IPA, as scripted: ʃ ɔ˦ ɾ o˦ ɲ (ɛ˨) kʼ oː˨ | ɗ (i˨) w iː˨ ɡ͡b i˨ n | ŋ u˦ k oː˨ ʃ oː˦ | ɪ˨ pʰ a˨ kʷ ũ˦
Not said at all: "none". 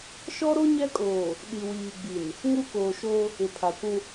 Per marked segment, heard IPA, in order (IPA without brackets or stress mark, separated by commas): ɛ˦, i˨